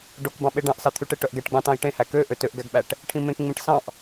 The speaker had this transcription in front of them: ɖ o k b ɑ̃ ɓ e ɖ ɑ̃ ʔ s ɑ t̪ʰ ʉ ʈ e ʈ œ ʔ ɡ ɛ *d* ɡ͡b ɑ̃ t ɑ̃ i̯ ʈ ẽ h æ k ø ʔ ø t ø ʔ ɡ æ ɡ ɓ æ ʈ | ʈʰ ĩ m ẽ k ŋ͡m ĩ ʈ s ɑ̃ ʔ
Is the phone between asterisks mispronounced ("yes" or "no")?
yes